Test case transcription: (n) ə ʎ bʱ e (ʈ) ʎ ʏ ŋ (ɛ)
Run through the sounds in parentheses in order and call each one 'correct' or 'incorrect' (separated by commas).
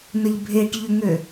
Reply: correct, correct, incorrect